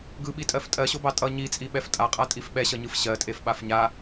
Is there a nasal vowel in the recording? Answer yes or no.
no